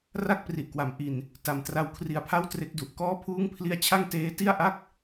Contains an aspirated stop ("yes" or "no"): yes